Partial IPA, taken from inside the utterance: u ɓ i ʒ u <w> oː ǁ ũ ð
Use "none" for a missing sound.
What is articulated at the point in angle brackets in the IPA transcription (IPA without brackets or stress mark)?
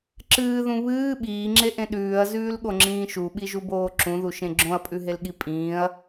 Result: b